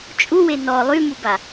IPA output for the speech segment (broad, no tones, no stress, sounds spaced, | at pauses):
t͡ʃʼ u w e n ɔ lˠ y m u b a